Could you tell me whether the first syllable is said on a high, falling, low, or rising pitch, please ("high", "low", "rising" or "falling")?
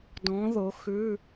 rising